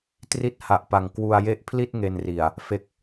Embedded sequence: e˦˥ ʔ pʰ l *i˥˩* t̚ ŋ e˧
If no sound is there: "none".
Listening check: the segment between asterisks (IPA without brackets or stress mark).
i˥˩